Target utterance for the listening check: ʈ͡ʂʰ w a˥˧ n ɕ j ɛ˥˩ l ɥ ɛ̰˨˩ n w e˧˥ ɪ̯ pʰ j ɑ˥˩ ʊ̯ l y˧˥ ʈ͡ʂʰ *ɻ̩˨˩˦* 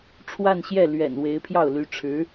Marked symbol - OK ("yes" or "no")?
no